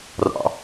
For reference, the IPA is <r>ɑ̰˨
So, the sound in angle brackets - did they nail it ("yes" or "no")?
yes